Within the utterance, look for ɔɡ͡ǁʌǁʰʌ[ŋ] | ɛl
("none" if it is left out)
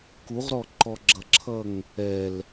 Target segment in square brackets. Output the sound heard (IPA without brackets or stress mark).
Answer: ŋ